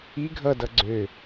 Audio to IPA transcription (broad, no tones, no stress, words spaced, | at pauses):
i ɡʱʌdʌ ɡ͡ǀø